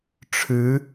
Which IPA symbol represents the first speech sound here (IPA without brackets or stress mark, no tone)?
ʈ͡ʂʰ